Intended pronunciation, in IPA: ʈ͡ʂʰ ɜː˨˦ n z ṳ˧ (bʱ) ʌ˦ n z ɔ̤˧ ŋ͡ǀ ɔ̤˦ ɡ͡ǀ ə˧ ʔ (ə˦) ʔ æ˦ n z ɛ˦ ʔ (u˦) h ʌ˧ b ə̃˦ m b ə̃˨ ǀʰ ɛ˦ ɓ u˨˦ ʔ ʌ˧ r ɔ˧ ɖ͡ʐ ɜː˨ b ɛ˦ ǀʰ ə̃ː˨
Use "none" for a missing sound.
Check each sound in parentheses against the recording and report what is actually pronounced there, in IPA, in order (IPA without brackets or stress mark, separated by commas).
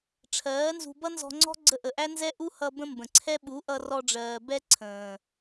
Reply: b, ə˨, u˦